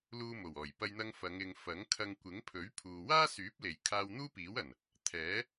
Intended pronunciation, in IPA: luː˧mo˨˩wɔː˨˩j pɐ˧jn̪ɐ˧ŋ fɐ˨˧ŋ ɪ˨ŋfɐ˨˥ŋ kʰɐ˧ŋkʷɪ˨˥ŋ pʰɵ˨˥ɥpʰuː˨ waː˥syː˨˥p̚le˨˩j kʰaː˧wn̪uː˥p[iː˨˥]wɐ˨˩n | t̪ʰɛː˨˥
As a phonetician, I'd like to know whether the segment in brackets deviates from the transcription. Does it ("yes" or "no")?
no